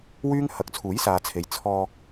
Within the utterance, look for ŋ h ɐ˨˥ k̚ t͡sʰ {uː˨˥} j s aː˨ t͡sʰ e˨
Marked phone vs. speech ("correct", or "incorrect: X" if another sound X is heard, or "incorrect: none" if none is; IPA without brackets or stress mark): correct